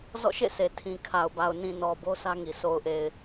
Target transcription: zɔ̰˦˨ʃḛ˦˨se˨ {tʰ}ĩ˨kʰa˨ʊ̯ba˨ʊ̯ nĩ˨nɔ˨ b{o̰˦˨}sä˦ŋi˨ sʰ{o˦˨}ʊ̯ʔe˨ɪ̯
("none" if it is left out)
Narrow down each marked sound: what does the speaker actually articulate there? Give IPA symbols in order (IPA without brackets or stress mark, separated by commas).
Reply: tʰ, o˦, o˨